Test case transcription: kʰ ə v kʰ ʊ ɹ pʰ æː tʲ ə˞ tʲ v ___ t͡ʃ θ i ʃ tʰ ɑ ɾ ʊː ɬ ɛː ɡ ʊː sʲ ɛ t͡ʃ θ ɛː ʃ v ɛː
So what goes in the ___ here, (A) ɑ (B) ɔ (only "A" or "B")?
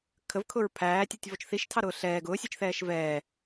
B